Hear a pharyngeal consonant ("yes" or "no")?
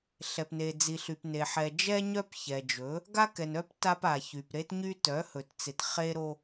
yes